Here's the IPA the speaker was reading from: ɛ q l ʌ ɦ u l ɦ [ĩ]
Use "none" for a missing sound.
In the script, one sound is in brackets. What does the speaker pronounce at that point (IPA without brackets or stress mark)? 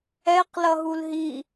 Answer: i